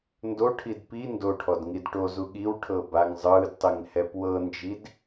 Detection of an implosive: present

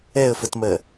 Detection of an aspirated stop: absent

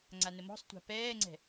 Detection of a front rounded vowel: absent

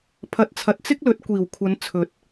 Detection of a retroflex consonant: absent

